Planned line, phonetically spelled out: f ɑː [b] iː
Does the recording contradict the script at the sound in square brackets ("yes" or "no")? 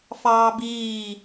no